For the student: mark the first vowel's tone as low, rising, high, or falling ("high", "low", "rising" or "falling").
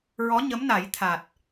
rising